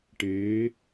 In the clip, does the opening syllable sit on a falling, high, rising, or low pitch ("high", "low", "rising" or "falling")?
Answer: rising